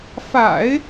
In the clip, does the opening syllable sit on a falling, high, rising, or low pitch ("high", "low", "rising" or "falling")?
low